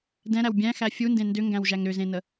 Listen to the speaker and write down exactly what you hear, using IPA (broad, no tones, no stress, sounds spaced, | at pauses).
d ɛ̃ ɾ æ w bʲ æ̃ x æ fʲ u n d ẽ n d ʏ ŋ ɡ æ̃ w ʒ æ ŋ ɾ ʏ z ẽ n ə